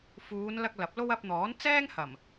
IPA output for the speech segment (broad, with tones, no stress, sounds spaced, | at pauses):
f uː˨˧ n l ɐ˧ k̚ l ɐ˨˥ p̚ l o˥ w ɐ˧ p̚ n̪ ɔː˨˥ n t͡s ɛː˥ ŋ h ɐ˨˩ m